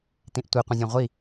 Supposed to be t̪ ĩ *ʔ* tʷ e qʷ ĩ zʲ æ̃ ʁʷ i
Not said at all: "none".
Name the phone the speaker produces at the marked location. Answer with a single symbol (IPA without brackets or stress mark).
ʔ